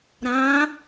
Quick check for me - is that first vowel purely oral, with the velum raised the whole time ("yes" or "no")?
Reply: no